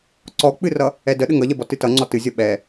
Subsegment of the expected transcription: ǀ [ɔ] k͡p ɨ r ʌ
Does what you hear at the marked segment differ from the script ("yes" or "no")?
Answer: no